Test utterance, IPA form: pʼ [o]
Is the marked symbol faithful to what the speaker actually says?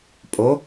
yes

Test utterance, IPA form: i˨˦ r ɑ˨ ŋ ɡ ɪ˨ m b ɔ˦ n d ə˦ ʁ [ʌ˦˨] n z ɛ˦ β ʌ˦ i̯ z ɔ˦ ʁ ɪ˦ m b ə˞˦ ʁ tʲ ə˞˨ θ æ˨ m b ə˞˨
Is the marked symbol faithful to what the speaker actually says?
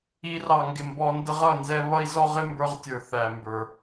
yes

